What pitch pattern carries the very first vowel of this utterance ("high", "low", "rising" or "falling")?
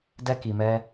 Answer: high